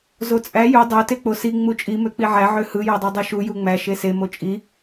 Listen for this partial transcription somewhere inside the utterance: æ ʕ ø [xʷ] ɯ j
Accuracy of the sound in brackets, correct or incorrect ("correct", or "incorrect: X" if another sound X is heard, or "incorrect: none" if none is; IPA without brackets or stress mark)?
incorrect: h